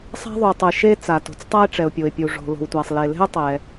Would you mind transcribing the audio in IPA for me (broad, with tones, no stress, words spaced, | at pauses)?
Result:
sˤa̤˥ ðˤu˩tˤɯ˩ ʃe˥ t͡sa˩to̤˩t͡s tˤa˥ɪ̯ʈ͡ʂɛ˩ʊ̯pʲo˩ɪ̯pʲu˩ ʐo̤˩ lo̤˩wtʷa˩sˤ le˩le̤˥ʊ̯ tˤɛ˩